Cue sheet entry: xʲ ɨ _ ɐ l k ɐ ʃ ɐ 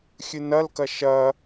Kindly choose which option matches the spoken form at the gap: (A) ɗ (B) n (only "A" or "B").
B